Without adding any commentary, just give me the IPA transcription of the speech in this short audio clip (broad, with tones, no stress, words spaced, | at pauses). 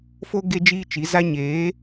fo˦ ɡe˦d͡ʒiː˦t͡ʃi˨˦za˦ ɲeː˨˦